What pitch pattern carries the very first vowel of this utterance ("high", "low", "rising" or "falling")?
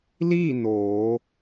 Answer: falling